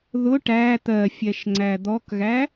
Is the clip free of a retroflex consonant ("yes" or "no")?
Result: no